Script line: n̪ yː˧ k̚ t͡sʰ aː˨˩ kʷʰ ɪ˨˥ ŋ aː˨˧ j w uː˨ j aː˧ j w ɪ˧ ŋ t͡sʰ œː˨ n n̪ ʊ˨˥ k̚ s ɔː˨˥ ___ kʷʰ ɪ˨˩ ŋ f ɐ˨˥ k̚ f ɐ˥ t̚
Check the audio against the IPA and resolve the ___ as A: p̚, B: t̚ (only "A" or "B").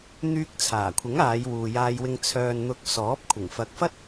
A